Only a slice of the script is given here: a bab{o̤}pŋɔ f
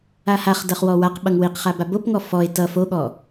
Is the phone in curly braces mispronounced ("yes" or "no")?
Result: yes